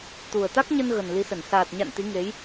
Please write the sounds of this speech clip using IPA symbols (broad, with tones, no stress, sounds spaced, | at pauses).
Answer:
t̪ u˨˩ ə̯ t̪ a˦˥ k̚ ɲ ə˧ n ɣ ə˨˩ n l i˨˦ s ə˧˩ n s aː˨˩ t̚ ɲ a̰˧˨ n t̪ i˨˦ ŋ e˨˦ j